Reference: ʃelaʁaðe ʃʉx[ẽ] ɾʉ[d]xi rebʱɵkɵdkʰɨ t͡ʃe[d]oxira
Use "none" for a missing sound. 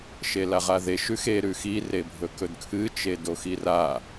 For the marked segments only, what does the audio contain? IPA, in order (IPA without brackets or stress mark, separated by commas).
e, none, d